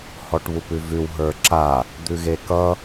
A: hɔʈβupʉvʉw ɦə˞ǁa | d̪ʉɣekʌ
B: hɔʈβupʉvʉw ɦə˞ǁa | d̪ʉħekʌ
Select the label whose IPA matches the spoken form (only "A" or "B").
A